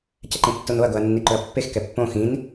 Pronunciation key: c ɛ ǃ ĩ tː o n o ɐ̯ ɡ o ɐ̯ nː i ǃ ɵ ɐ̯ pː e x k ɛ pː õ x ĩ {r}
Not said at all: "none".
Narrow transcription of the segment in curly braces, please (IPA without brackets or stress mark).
n